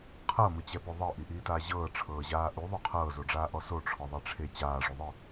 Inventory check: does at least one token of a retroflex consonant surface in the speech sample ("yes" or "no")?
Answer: yes